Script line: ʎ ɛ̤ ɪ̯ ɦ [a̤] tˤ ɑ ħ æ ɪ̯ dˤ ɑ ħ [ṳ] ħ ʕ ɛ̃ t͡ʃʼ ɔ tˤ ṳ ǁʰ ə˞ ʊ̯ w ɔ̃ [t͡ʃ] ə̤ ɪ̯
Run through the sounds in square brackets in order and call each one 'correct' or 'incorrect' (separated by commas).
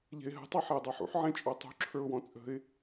incorrect, incorrect, incorrect